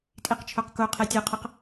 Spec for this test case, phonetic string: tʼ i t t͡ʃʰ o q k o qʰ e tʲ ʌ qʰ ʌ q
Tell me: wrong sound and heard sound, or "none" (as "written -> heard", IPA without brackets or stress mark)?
t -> q